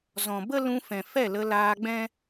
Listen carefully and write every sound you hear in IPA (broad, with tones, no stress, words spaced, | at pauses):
zɔ̃˨ bə˦lũ˧ fɛ̃˨ fɛ˦˨lə˧ laː˧ɡ͡bɛ̃˦